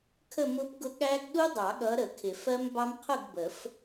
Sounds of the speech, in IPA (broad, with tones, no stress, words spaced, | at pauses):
kʰə˥˨mʊ˦˥pɡʊ˦˥ ɠæ˦˥ɡ ɗu˦˥dˤɑ˨˩˦ɠʌ˨˦ɾə˨˩˦ kʰɪ˨˩˦fɜ˦˥mbɑ˦˥m qʰʊ˥˨ɡbə˨˩˦f